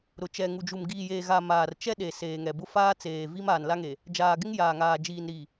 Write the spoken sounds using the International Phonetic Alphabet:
ɾ ʊ˨ t͡ʃ ɛ˨ ŋ u˨ d͡ʒ u˨ m ɡ iː˨ j eː˨ ɣ a˨ m aː˨ r t͡ʃ ɛ˦ ɗ e˨ s eː˨ ŋ ɛ˨ b ʊ˦ f aː˦ t͡s eː˨ v i˦ m aː˨ n l a˦ ŋ e˨ | d͡ʒ aː˨ ɡ ɪ˦ ŋ j aː˨ ŋ aː˨ d͡ʒ iː˨ n ɾ i˨

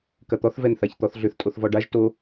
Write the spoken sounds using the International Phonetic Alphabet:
k ɐ t̪ ɔ θ v ɛ n θ a ç t̪ ɔ θ ɮ ʏ θ tʼ o θ v ɔ ɖ a ʒ t o

